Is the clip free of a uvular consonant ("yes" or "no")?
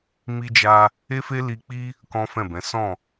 yes